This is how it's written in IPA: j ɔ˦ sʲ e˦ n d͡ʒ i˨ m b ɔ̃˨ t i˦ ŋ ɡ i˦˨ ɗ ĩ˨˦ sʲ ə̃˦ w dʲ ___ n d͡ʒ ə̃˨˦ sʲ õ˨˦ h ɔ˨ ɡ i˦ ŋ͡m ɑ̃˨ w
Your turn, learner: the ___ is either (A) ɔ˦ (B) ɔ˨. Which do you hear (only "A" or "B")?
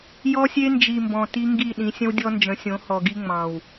A